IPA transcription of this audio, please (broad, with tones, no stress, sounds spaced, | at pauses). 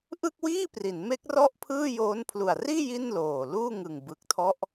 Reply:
ʔ ɯ˥˩ k̚ w iː˥˩ p r i˩˦ n m e˦˥ k̚ r ɔ˥˩ ʔ pʰ ɯː˥˩ j oː˦˥ n pʰ l u˨˩ a̯ r iː˥˩ j i˥˩ n l oː˨˩ l uː˥˩ ŋ ɯ˨˩ ŋ b ɯ˨˩ k̚ tʰ ɔ˦˥ ʔ